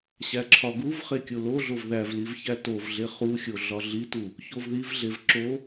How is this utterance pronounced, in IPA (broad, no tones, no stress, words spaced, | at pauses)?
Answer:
ɕæǁʰɒɡuvχe kʲoloɮov ðævliv çætovɮe χuxʲo ɮɒɮitu | çovðivɮev ǁo